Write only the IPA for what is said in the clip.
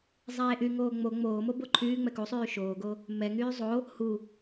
zˤ eː ʔ y ŋ oː ŋ͡m o ŋ͡m oː m o b o ǃʰ yː ŋ͡m ɛ k u sˤ yː ʃ oː ɡ o | m ɛ ŋ yː zˤ o | h u

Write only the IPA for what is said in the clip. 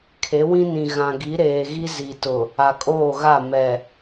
kʰ e˨˦ w ĩ˦ n ĩ˨ ɣ ã˨ ɡ i˨˦ ɾ eː˨ ɣ i˦ z i˨ t ʊ˨ | a˨ kʼ oː˦˨ ɣ a˦˨ m ɛ˨

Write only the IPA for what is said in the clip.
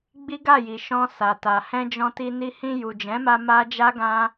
ɡ͡b i˦ ɡ a˦˨ j i˨ ʃ ɔ̃˧ s a˨ t a˨ h ɛ̃˧ d͡ʒ ɔ̃˧ t i˧ n i˧ h ĩ˧ j u˨ d͡ʒ ɛ̃˨˦ m a˧ m a˦ d͡ʒ a˦ ɡ ã˦

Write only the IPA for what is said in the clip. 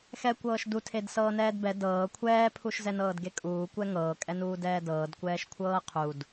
x ɛ kʷ ɤː ʃ d u tʰ e d s ɤː n ɛː d b ɛ d ɤː kʷʰ ɛː pʰ u ʃ z ɛ n ɤː d ɡ e kʼ uː kʷ ɛ ŋ ɤː kʼ ɛ n uː d ɛː d ɤː d kʷ ɛː ʃ kʷʰ ɤː qʰ u d

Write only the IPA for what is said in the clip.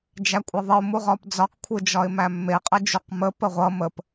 d͡ʒ æ kʷʼ ʌ ðˤ ə ʊ̯ m u ʁ ɒ p d͡z ɒ q kʷʰ ɯ d͡ʒ ɒ ɪ̯ m æ mː e qʼ ʌ d͡ʒ u q m ə p ə ʁʷ ʌ m ə p

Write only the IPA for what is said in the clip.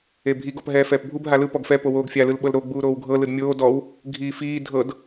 e bʱ i ɡ ɔ p ɦ ɛː f ɛː p bʱ u b ɦ a l ɯ p ɔ ɡ f ɛ p o w oː ɡ fʲ a l ɯ l ɓ ɤ l ɾ o ɡ͡b uː ɾ oː w ɡʱ ɤ l ɯ d mʲ oː d ɔ w | ɡʱ iː f iː dʱ ɤ d

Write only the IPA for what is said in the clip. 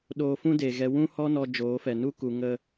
ɗ oː˧ f ũ˦ d eː˨ ɣ ɛ˧ w ũ˧ h ɔ˧ n ɔ˧ d͡ʒ oː˨˦ f ɛ˨ n u˦ k u˨ ŋ ə˦

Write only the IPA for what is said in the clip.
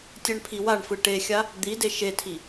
tʲ ɜ ɳ pʰ i w a ɳ f ɯ ʈ e xʲ a | d̪ i d e ʃ e tʰ i

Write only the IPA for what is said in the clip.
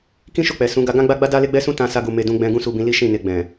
k ĩ˦ ʃ o˦˨ k͡p ɛ˨ s ũ˨˦ ɡ a˧ ɡ ã˦ ɡ͡b a˦ ɡ͡b a˦ d a˦ l e˦ ɡ͡b ɛ˦ s ũ˦ t ã˧ s a˧ ɡ u˨ m e˧ d ũ˧ ɡ͡b ɛ̃˧ ɡ ũ˦ s u˧ b ĩ˧ l i˦ ʃ ĩ˦˨ n e˧ ɡ͡b ɛ̃˨

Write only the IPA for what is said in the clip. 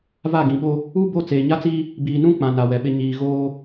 v a˦˨ ɡ ĩ˨ ɓ o˦ | u˦ b o˦˨ t͡s eː˨ ɲ a˦ t͡s iː˦ | b iː˨ n ũ˦ k͡p ã˨ n a˨ w ɛ˨ ɓ ɪ˦ ɲ iː˨ ɣ oː˦

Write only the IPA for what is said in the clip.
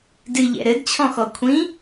d ɨ ʎ ɛ̰ ɾ ɘ d t͡ɕʰ ɔ̃ x ɔ kʷʰ ĩ

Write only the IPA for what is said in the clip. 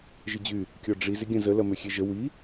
ʒ ɪ d͡ʑ y | kʲ ɔ ɖ͡ʐ i z ɪ ɡʲ ɐ̃ z ə l ɐ m ø xʲ e ʒ ə w i

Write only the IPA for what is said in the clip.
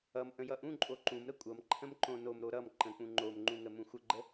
ʌ m ʔ ə̃ j ʌ ʔ ũ ǃʼ o ǃ ũ m ɾ ə kʷʼ ʌ m ǃʰ ə̃ m ǃ õ n o m ɾ o ɾ ʌ m ǃ ə̃ k͡p ũ ŋ͡ǃ o m ŋ͡ǃ ũ ŋ ə m ũ xʷ ə ɡ͡ǃ ə

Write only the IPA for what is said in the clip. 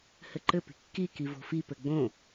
h ɘ ǃ ɘ p i̤ kː i k i v o̤ f i p ɘ ɡ͡b õ

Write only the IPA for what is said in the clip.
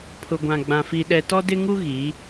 pʰ ʊ˨ ɡʷ ã˨ ɡ͡b ã˨ f i˨ ɗ ɛ˨ t ɔ˦ d ɪ˦ ŋ u˦ ɣ i˨˦

